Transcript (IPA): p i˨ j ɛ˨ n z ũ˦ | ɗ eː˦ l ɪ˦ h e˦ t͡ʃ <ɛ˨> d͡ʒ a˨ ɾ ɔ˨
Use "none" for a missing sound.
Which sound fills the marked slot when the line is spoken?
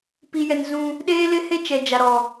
ɛ˨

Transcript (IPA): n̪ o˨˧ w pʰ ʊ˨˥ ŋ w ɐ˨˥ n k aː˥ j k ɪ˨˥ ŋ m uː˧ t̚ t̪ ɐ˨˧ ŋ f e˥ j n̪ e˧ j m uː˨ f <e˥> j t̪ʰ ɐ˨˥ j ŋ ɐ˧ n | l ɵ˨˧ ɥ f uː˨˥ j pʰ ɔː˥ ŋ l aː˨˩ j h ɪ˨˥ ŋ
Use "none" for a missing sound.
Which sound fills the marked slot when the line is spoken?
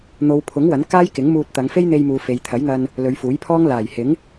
e˨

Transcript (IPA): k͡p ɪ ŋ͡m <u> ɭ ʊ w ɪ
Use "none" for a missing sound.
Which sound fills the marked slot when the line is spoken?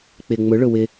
ʊ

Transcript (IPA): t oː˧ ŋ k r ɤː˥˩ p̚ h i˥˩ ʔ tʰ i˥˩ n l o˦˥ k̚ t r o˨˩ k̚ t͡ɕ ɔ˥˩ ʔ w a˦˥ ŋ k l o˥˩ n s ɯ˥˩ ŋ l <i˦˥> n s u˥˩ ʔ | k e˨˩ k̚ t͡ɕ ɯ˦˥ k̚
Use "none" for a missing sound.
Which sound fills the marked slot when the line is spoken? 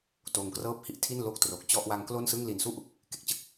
i˨˩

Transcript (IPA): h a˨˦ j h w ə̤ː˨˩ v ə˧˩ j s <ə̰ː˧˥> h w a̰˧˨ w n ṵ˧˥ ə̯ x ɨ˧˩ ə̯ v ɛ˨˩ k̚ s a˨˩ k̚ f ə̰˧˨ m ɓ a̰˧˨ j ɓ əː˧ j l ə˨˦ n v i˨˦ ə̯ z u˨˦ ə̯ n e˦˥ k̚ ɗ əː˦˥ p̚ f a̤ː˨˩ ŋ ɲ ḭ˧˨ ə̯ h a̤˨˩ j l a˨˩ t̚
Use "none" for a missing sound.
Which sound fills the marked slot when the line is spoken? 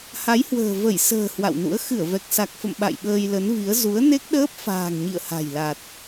ə̤ː˨˩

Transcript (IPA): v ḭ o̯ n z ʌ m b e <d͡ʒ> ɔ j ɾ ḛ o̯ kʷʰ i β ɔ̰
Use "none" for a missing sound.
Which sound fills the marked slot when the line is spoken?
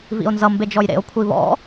d͡ʒ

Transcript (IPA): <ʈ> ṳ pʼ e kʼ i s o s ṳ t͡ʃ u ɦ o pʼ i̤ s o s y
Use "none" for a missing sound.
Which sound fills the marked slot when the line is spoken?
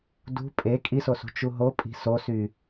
d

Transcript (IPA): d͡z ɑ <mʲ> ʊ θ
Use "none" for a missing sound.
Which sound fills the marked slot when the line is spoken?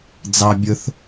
bʲ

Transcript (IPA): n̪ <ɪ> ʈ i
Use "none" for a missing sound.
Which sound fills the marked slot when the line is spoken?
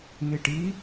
i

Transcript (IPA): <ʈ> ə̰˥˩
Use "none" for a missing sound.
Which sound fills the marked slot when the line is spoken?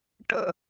ʈ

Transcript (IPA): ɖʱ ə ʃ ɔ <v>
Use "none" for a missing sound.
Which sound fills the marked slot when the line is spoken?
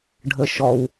w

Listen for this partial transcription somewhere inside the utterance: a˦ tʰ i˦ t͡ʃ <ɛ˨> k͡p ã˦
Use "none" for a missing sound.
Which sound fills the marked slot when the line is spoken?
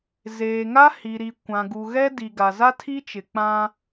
ɪ˨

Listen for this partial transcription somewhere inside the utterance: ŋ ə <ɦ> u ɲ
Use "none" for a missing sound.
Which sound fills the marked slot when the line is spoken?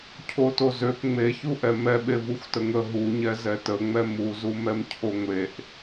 ɦ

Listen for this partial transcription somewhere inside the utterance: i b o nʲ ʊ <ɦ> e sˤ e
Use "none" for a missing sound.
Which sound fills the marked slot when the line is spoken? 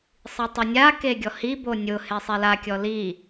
h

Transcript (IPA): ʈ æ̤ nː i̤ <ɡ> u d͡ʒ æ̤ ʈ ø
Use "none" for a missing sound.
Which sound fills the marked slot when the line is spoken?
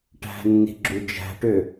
ɡ͡ǁ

